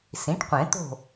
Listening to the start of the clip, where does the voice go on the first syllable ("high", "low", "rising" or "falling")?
rising